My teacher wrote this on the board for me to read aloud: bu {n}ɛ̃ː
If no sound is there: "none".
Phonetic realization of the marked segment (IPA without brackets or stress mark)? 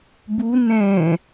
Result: n